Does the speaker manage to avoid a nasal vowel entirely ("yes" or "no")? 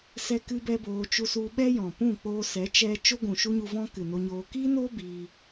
no